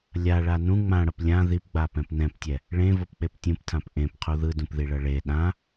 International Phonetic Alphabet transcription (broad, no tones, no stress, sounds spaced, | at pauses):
lʲ a ɭ a n ũ ŋ͡m ã ɽ ʌ p lʲ ã ð i p ɡ͡b a p ɛ̃ p n ɛ̃ p tʲ ɛ | ɭ ẽ v o p k͡p e p tʲ ũ p tʰ ã p ʔ ẽ p qʰ u ð ɯ d ũ p ð i ɭ ʌ ɭ e ɗ ã